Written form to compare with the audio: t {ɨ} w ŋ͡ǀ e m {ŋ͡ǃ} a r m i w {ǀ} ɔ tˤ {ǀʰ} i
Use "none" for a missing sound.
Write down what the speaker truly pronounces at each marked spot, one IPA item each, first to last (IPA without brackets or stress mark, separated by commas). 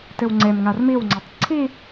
ɨ, ŋ, ŋ͡ǀ, ǀʰ